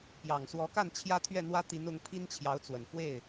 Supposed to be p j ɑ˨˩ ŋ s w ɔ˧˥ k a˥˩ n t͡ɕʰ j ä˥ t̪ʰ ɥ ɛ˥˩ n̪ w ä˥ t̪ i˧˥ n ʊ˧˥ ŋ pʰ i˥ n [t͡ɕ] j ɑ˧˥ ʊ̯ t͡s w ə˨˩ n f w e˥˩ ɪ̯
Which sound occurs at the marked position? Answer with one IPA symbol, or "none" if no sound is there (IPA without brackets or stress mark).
t͡ɕʰ